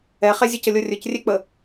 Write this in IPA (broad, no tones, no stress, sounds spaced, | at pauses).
ɛ χ ɛ zʲ ə c ə lʲ o rʲ ɵ c rʲ e k͡p ə